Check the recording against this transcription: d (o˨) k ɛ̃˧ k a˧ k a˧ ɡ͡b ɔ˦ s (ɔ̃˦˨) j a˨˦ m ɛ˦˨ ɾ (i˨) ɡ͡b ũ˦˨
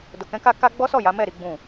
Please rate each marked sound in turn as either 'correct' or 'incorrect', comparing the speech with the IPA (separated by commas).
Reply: correct, incorrect, incorrect